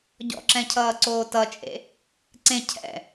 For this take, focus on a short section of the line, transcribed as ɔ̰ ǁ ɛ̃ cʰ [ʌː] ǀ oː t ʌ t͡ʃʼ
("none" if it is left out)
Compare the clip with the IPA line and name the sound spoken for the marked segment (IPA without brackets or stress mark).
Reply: ʌː